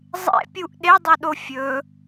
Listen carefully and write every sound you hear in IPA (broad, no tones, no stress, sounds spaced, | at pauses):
zˤ ḛ pʲ u ʔ ɗ e dˤ u ɗ o fʲ ɵ